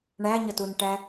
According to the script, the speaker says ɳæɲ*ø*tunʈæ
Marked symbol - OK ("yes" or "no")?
no